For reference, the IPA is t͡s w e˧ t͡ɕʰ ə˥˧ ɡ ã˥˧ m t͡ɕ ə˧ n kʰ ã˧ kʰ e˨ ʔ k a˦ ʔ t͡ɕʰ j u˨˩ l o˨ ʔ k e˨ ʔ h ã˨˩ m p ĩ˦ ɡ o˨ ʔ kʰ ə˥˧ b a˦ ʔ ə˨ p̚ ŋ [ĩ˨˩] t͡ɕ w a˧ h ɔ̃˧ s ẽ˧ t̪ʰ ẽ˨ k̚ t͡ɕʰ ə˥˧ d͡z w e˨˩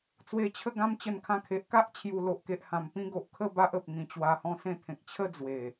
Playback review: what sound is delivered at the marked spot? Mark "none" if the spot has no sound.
ĩ˨˩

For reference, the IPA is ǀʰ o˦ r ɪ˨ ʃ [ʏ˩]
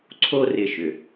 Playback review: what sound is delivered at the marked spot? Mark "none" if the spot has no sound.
ʏ˩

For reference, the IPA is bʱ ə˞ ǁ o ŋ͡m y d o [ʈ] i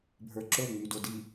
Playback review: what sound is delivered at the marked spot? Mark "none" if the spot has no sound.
d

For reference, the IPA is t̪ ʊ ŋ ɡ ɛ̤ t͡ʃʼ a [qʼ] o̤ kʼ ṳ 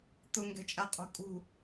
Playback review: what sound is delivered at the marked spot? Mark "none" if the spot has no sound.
qʼ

